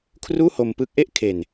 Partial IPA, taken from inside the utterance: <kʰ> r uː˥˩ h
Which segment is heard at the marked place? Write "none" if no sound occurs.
kʰ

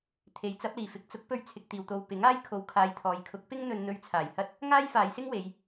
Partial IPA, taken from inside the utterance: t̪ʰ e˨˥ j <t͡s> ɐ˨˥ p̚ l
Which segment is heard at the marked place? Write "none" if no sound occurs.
t͡s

